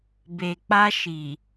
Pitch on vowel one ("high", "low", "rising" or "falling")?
low